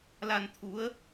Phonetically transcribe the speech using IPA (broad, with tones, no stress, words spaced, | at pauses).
la˧nt̪ʰu˨˦ə̯